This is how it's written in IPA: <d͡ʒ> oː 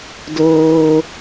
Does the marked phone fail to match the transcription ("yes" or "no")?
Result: yes